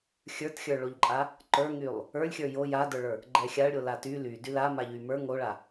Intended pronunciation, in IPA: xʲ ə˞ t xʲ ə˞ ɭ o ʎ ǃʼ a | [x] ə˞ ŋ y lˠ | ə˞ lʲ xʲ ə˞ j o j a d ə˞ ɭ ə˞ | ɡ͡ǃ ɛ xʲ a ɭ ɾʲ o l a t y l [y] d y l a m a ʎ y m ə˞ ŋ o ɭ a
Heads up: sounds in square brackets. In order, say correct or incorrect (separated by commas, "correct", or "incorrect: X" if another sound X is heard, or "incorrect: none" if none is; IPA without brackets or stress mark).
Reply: incorrect: ǃ, correct